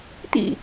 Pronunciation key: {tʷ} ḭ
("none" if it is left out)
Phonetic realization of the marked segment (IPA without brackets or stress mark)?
t̪